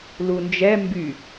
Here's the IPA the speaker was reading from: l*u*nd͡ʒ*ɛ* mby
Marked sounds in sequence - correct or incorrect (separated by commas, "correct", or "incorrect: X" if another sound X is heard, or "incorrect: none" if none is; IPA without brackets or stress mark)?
correct, correct